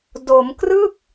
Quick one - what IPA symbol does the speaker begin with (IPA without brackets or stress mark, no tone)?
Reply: d